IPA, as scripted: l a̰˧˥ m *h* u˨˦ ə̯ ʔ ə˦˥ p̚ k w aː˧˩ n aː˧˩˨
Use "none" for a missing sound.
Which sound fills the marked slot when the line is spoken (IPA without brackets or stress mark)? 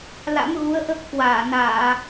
ɣ